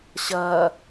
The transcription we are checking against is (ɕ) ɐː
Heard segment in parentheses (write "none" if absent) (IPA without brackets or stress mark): ɕ